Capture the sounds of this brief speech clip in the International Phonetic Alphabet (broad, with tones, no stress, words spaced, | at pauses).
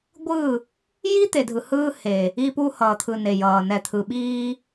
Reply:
ɡʷɯ˦˨ | ji˦ t̪e˨dʱɯ˨hɯː˦he˨ | i˦pu˦ hʌː˨t̪ʰɯ˨ne˨jʌː˨ nɛ˨t̪ʰɯ˨ɓiː˦